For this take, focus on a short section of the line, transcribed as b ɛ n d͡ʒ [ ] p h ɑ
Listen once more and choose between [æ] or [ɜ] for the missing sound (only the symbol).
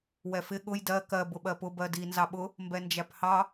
æ